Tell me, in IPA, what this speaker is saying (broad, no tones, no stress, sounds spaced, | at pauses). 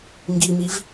ŋ ɡ i m i v